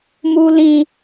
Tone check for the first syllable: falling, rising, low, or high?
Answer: high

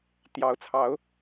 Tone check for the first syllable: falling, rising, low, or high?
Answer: rising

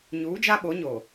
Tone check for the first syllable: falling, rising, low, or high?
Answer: rising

